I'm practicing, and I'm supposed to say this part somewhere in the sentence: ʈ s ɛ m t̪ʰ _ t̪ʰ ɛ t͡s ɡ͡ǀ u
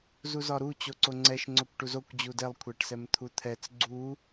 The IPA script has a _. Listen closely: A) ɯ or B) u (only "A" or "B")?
B